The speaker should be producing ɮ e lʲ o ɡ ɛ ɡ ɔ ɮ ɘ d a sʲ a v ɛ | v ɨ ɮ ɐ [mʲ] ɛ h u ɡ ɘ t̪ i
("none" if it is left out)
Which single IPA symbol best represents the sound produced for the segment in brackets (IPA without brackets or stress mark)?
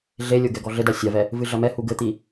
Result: m